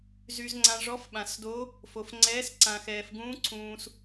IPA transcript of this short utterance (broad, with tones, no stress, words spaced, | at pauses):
zy˨zŋ͡ǀã˨ ʐɔ˧˥fɓã˨s do˧˥ | fo˨f ŋ͡ǀɛː˧˥sǀã˨xɛː˨f ɡũː˧˥ǀʰũː˨s